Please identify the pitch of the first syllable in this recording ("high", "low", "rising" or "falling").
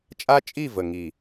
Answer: high